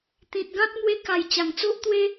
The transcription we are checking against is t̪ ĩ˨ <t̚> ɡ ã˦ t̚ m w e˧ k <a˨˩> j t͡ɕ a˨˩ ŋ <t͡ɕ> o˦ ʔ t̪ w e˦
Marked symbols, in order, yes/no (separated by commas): yes, yes, no